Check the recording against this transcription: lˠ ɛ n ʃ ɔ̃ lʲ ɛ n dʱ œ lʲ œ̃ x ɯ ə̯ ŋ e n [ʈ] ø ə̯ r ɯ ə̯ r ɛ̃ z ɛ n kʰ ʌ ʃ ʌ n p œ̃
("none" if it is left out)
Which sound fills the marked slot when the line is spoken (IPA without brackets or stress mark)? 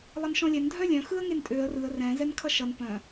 tʼ